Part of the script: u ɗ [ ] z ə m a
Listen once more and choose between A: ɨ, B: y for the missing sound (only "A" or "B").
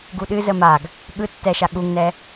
A